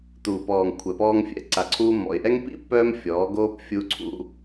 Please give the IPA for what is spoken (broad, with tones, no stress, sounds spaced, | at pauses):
t uː˨ p ɔː˨ ŋ kʷʰ ɛ˨ p ɔː˧ ŋ fʲ ɛ̰˨ ǀ a˨ ǀʰ uː˧ mː ɔ̰˨ ɪ̯ ʔ ɛ˦ ŋ p ḭ˦ pː œː˧ m fʲ ɔː˨˦ ɡ oː˦ p fʲ u˧ ǀʰ ṵ˧